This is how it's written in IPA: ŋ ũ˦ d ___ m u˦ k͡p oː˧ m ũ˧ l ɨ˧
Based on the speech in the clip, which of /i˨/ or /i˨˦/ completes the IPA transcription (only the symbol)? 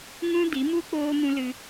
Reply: i˨˦